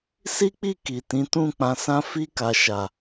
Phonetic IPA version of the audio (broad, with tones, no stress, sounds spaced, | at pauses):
s i˦ k͡p i˦˨ k i˨ t ĩ˨˦ t ũ˦˨ k͡p ã˧ s ã˦ f i˧ k a˨ ʃ a˨